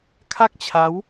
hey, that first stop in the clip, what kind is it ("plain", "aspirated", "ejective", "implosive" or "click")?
aspirated